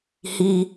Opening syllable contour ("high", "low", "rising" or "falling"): high